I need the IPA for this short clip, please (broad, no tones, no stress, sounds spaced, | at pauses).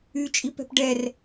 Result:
y t͡ʃʼ i p ɛ̤ p ɖ ɛ r